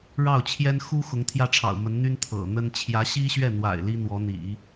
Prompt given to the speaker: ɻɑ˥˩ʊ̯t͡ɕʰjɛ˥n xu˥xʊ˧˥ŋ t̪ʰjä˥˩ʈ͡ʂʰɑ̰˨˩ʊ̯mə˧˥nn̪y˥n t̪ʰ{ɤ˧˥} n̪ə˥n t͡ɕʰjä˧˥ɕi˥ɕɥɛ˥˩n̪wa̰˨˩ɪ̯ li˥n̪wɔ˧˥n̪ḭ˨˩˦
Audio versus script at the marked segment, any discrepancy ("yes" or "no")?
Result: yes